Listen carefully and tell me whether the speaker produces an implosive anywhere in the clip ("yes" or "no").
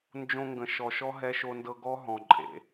no